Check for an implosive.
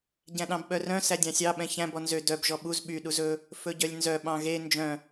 present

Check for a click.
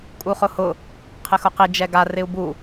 absent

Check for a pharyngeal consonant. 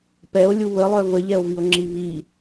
absent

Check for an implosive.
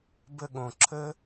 present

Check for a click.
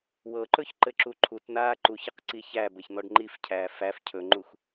present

